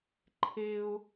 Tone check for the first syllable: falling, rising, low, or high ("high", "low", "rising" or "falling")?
high